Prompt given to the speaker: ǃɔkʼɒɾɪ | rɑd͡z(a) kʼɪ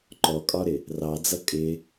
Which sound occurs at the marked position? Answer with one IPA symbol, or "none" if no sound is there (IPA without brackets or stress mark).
ʌ